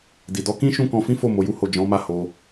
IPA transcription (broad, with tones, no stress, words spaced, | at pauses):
di˨dɔ˨˦kĩ˦ ʃũ˦kɔ̃˧fĩ˦fo˦˨ mo˨˦ju˦ho˦˨ d͡ʒɔ̃˨˦ma˦˨ ho˧